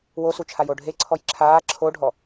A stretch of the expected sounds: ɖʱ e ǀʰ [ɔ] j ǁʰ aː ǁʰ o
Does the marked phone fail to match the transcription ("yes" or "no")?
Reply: no